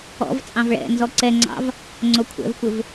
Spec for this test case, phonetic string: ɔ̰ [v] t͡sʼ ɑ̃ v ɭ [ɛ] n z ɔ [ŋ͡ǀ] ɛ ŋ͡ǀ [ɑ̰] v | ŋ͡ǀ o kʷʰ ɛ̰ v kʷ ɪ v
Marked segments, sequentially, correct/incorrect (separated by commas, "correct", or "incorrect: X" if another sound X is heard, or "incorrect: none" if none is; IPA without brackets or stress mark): correct, incorrect: ɛ̰, incorrect: ǀ, correct